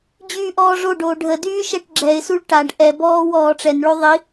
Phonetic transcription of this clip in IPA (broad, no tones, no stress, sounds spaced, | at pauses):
d͡ʑ yː ʔ ɔː ʐ o ɖ oː ɖʱ ə d yː ʃ ɛ ʈ ɡ͡ǁ ɛ ɪ̯ s u ɭ ʈ a ɖ ʔ ɛ b ɔː w ɔː ʈ͡ʂ ɛ n ɭ o ðˤ i